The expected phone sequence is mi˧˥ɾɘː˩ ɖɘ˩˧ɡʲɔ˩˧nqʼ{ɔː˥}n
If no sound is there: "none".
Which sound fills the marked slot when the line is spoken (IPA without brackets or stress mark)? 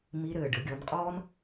ɔː˥